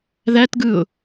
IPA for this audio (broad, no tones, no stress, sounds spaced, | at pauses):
ð æ t ɡ ɯ ʊ̯